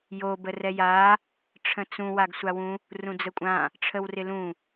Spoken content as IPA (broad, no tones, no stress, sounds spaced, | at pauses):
j o b ə r ɛ j a | ʈ͡ʂʰ ə̃ t͡s ũ w a ɡ sʷ a w ũ | r ũ d͡z ə kʷʼ ã | ʈ͡ʂʰ ə w r ɪ l ũ